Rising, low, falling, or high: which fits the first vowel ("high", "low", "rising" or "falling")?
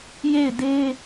falling